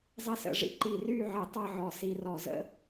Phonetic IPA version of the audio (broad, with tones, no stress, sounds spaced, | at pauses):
zˤ ɪ˥ s ə̰˥˧ ʐ ḭ˥ ǃ i˧˩ r y˥˧ ʕ ɪ˧˩ tˤ ʌ˥˧ ʕ ɔ˧˩ s i˧ r ɔ˧˩ z ə̰˥